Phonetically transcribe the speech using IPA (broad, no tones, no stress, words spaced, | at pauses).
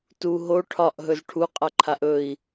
tu ɦo ʈʰɒʔɦɵz ʈʰuqʼaǃʰaʔ ɵi̯